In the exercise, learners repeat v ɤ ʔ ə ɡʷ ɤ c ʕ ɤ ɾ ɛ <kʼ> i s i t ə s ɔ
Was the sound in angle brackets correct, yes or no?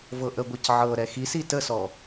no